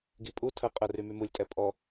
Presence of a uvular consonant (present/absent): present